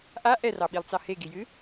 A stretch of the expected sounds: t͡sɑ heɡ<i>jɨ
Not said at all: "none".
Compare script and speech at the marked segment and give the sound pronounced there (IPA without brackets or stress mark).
i